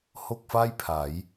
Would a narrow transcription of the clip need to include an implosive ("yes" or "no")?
no